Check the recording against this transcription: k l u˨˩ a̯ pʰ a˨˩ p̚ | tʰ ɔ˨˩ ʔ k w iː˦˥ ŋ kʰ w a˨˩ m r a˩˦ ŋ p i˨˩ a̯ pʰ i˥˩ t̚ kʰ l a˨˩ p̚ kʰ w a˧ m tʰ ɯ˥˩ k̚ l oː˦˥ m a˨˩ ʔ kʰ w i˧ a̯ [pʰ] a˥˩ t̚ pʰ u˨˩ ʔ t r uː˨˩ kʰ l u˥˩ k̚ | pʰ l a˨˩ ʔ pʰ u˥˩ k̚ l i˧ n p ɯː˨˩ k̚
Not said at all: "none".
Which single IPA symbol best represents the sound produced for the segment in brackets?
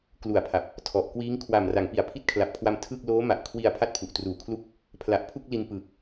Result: pʰ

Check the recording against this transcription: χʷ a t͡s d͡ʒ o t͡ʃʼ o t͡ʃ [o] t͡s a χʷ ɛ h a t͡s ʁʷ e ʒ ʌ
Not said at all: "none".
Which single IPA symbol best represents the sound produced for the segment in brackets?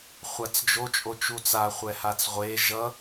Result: u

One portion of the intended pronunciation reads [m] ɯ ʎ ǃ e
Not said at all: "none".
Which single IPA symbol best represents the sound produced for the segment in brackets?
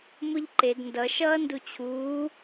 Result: m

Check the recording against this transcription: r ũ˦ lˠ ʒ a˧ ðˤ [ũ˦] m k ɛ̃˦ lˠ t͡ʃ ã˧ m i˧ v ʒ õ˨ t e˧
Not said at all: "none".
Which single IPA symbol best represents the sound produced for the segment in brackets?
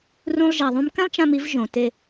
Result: ũ˦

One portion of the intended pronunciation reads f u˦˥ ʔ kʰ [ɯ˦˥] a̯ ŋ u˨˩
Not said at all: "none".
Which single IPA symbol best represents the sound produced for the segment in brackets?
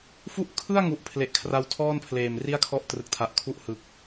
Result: ɯ˥˩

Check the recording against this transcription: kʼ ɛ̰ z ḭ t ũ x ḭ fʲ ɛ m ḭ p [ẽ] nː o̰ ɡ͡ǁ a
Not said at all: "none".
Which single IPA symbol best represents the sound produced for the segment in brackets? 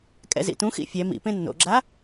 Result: ẽ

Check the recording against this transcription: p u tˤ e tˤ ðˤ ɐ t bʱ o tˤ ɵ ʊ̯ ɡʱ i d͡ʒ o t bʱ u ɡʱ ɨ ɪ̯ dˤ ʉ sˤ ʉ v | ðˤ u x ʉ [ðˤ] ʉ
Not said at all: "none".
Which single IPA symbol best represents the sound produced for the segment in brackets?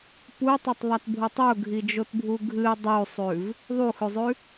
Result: zˤ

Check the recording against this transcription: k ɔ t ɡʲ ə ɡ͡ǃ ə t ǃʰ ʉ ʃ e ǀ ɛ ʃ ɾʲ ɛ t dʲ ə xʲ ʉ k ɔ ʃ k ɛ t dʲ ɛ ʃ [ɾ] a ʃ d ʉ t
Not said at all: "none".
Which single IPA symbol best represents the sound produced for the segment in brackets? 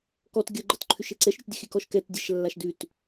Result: lː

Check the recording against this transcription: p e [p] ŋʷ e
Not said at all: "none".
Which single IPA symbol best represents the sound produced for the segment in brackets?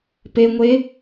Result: none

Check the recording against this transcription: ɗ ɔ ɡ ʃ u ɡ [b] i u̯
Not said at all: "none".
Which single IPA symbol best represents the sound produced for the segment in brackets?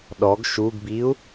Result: b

